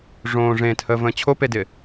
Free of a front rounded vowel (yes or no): yes